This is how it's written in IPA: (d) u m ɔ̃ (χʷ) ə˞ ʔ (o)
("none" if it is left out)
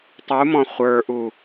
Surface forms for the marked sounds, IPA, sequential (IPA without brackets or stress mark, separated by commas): tˤ, χʷ, u